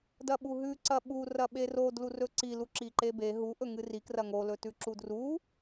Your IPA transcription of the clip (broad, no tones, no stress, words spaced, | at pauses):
dɐɓuɦʉ ǀɐɓu rɐɓero dlurɵǀi luǁiǃebe ɦu ʔɵŋɨri krɐŋo lɵtʉǁudru